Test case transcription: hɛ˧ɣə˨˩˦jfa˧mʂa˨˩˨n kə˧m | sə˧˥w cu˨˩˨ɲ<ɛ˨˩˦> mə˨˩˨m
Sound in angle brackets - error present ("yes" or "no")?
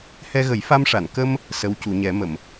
no